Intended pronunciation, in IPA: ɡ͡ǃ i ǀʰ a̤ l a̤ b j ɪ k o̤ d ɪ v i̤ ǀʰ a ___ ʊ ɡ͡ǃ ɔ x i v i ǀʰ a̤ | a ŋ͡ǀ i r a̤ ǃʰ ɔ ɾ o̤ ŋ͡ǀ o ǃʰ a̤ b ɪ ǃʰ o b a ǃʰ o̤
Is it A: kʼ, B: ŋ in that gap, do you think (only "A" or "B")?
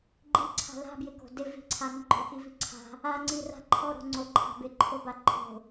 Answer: B